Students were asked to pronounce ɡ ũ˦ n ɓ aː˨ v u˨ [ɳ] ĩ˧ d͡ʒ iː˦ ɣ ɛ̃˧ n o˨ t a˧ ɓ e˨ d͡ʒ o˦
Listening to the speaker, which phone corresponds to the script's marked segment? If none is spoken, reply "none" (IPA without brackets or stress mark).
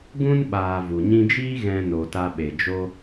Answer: ɲ